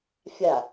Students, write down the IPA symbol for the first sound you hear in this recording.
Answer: fʲ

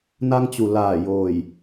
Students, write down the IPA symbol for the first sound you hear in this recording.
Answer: n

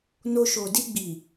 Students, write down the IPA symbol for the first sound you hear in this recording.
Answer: n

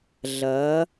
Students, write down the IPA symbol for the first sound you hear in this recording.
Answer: ɮ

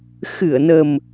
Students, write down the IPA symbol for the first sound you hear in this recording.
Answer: x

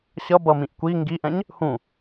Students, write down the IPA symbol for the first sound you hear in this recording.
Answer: ɕ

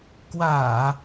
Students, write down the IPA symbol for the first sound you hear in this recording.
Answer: k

